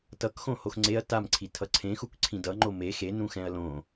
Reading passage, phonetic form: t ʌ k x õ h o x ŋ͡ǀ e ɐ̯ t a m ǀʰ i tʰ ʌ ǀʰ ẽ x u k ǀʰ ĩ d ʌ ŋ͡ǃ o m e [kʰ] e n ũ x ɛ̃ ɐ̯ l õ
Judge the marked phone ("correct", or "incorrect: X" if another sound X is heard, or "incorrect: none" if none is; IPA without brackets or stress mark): incorrect: x